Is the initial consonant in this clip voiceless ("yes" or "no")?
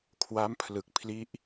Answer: yes